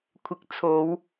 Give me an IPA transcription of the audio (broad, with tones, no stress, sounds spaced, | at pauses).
kʷʰ ɪ˨ k̚ t͡sʰ o˨˧ w